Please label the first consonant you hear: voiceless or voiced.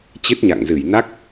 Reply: voiceless